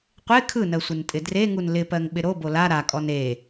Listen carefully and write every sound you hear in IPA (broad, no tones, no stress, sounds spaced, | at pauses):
qʷ e kʰ ɯ n ɜ sʷ ɪ n tʼ ɪ d r e ŋ u n l ɪ p ɜ ŋ ɓ ɪ ɾ o b o l a ɾ a kʼ ɔ n e